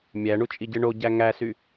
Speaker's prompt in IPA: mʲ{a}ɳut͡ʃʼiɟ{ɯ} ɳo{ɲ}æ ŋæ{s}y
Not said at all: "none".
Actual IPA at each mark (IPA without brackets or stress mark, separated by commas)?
æ, ɯ, ɟ, s